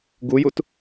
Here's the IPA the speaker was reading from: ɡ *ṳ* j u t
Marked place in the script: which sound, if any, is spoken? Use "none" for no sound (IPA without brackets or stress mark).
u